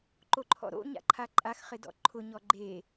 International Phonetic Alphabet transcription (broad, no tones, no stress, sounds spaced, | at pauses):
ǃ o ǃʰ ɔ̰ ɾ o̰ ɲ a̰ ǃʰ a ǃʼ a x χ ɪ d ɔ̰ ǃʰ ʊ ɲ ɔ ɡ͡ǃ e